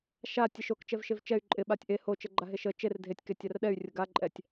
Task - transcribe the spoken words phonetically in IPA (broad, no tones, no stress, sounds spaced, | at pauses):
ʃ a tʲ e ʃ o k t͡ʃ ɛ v ʃ e v t͡ʃ ɛ y̯ ǃʼ ɪ ɓ a tʲ ʔ e h o t͡ʃ ə ɡ͡ǃ a ɦ e ʃ ə t͡ʃ e r dʱ e tʲ k e tʲ a r ɗ ɛ y̯ rʲ ə ɡ a ǃʼ ɛ tʲ